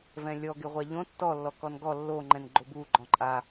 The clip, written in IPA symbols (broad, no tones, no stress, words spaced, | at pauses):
vɛ̃lʲɔɡɪʁʷa ʎõ tːɔlːɔkɔn ɡɔ lːoŋ͡ǃɛ̃n ɡ͡ǃobu ɡ͡ǃɔ̃ǃʼa